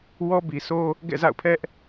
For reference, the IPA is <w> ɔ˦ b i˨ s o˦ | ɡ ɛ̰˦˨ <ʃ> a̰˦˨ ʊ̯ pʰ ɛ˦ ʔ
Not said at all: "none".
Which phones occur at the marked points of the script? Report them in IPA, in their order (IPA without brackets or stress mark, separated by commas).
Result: w, z